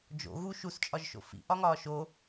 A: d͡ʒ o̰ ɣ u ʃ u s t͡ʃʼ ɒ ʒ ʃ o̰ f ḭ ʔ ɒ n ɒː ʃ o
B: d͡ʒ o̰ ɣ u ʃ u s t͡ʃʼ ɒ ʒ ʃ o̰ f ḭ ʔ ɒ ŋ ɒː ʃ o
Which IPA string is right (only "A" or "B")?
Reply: B